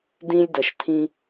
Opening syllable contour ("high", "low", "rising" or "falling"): high